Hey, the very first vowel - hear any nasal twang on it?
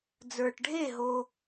no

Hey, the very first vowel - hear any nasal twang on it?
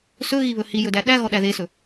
no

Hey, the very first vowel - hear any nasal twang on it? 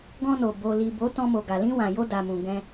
yes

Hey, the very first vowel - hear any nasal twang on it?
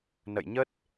no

